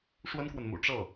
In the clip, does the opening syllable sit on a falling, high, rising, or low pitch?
high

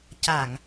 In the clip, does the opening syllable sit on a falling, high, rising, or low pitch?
low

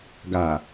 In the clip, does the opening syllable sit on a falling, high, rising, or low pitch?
low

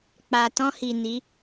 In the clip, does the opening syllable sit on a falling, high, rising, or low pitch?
low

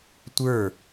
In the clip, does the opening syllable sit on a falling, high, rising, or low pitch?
falling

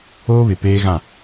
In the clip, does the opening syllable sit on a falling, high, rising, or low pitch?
high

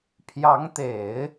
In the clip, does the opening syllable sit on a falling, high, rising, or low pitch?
rising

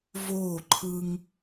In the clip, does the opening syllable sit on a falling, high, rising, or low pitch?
falling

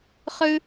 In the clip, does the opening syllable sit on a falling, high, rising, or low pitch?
high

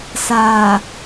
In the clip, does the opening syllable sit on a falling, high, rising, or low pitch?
low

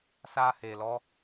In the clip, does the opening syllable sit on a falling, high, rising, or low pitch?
high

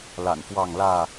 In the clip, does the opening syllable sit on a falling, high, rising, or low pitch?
low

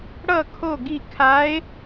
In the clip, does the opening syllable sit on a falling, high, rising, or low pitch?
falling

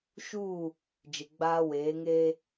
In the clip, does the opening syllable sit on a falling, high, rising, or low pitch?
falling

